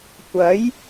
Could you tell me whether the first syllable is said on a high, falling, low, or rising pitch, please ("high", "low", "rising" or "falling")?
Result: rising